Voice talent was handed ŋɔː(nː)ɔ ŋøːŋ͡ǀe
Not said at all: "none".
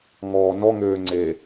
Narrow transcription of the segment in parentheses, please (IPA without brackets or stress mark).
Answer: n